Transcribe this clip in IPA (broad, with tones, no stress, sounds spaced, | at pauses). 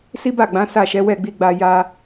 s i˦ b a˦˨ ɡ͡b ã˨˦ s a˦˨ ʃ ɛ˨˦ w ɛ˦˨ ɡ͡b i˧ ɡ͡b a˧ j a˧